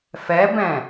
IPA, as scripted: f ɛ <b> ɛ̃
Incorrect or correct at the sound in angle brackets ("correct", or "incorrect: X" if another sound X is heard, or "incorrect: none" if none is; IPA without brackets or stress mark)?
correct